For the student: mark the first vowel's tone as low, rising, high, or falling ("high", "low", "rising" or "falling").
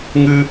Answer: high